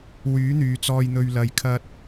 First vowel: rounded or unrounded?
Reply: rounded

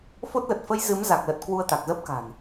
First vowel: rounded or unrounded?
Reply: rounded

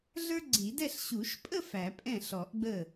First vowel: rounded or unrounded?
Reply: unrounded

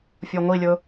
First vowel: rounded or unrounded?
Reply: rounded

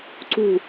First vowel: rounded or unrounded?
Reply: rounded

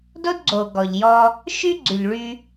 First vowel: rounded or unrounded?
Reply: rounded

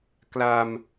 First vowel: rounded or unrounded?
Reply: unrounded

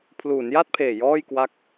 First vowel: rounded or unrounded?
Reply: rounded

